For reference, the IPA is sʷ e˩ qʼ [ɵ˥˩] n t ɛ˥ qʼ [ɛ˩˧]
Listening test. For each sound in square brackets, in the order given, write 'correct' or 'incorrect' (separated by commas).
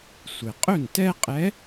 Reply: correct, incorrect